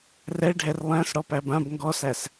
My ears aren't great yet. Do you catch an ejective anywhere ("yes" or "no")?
no